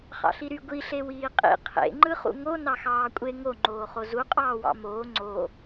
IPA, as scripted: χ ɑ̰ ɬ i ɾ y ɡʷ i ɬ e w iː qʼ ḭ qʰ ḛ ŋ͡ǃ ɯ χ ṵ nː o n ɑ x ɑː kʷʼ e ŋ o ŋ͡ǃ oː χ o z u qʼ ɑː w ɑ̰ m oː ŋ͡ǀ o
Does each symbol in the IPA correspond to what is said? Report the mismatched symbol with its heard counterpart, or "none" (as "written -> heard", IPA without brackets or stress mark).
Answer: nː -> ŋ